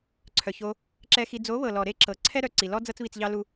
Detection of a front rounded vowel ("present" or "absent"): present